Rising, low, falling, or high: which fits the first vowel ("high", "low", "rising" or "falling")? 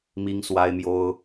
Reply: high